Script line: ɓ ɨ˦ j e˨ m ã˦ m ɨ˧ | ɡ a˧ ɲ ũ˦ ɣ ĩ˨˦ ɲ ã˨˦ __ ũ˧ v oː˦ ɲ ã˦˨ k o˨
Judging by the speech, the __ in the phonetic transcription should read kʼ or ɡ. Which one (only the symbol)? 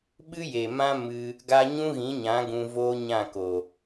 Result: ɡ